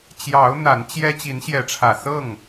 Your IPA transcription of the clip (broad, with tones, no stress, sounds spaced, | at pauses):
t͡ɕ j ɑ˨˦ ʊ̯ n̪ a˨˦ n t͡ɕ j ɛ˦ t͡ɕ i˨˦ n ɕ j ɛ˨˦ ʈ͡ʂʰ ä˨˩ s ɤ˥˨ ŋ